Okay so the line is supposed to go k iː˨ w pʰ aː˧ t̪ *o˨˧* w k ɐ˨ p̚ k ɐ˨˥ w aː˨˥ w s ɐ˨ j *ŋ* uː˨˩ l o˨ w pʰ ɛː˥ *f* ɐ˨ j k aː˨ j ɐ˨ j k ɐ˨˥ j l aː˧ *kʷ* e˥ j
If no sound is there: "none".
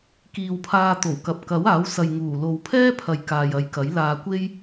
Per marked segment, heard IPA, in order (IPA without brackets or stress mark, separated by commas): o˨˩, ŋ, pʰ, kʷ